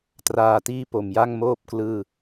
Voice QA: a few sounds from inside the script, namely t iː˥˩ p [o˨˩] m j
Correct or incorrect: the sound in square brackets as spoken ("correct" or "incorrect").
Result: correct